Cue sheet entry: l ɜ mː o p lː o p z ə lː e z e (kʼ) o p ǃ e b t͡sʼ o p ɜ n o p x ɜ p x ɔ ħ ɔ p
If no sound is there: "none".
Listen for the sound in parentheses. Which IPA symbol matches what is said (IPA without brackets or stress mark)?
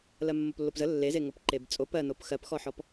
ŋ